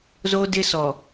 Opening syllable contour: high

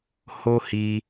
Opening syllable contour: high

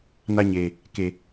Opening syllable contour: high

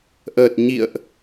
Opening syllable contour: low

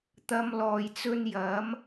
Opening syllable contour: high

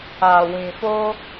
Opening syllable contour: low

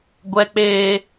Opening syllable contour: high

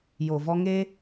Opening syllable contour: low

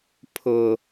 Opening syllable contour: low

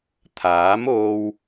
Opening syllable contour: rising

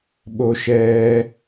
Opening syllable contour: high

